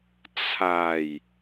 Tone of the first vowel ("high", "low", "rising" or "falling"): low